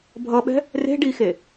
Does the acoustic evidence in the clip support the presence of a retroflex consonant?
yes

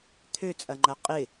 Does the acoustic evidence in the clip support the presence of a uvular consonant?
yes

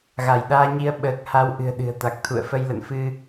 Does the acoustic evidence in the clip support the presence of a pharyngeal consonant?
no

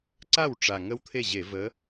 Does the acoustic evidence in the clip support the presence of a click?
yes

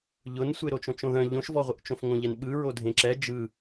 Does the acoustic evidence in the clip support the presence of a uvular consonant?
yes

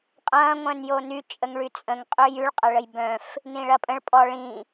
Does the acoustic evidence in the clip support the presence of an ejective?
yes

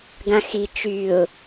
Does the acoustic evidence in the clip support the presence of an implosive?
no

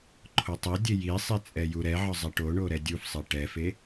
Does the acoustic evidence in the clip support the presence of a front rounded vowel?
no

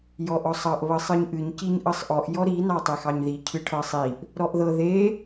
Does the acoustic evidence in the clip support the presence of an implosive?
no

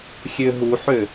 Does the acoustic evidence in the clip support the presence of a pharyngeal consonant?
yes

